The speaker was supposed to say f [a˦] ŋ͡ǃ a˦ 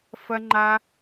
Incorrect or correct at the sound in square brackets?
incorrect: ɐ˦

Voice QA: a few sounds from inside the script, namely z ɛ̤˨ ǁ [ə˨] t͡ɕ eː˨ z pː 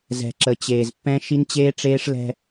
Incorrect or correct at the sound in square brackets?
correct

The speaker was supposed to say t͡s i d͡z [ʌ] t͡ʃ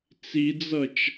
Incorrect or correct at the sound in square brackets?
correct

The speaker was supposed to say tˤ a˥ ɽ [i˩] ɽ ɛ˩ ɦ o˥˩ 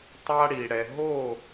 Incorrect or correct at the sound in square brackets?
correct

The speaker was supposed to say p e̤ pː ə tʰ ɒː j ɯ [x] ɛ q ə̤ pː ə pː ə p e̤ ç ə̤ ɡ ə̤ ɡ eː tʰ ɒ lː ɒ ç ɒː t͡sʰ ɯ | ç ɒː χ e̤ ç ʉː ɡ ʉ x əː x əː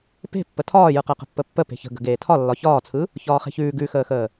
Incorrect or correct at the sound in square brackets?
incorrect: q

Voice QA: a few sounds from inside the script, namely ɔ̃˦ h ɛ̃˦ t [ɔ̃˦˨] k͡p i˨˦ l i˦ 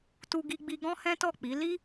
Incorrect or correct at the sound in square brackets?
incorrect: ɔ˦˨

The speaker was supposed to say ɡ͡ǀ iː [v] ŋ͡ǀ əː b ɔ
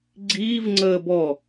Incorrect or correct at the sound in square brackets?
correct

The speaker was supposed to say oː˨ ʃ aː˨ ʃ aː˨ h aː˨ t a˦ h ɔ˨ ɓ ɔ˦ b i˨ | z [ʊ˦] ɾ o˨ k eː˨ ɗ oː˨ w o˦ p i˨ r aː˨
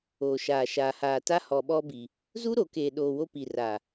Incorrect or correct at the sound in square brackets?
incorrect: u˦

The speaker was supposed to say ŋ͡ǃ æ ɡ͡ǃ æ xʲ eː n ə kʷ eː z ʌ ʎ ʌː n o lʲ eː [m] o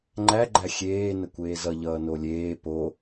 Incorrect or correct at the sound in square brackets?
incorrect: p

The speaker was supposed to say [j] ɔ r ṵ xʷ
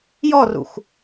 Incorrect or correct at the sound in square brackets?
correct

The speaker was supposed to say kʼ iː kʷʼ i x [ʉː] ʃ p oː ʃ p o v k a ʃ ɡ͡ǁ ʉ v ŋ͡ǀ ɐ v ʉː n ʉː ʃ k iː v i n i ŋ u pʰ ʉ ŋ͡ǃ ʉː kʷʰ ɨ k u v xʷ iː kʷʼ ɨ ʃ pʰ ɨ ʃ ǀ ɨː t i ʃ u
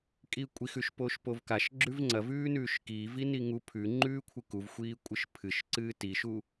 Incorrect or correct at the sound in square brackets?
incorrect: ʉ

